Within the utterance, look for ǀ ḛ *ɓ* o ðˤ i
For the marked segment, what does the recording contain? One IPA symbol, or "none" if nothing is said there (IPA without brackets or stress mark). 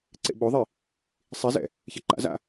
ɓ